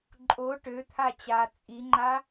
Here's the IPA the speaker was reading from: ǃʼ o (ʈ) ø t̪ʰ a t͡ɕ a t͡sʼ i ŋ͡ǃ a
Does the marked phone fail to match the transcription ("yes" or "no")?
no